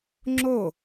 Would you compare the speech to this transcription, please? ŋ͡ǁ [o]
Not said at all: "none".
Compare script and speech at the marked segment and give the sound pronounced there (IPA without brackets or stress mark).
o